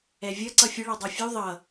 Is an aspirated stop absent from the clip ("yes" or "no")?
yes